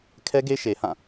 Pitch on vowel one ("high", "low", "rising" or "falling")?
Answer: high